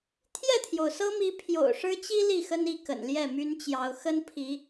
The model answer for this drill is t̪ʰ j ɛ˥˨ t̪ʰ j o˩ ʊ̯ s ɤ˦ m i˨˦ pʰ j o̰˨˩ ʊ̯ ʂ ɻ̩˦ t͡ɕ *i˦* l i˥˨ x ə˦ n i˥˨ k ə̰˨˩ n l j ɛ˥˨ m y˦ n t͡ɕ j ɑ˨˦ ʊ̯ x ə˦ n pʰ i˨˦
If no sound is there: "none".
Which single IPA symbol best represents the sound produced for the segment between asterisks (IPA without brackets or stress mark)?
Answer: i˦